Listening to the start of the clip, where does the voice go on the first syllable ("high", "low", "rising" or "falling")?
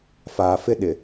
low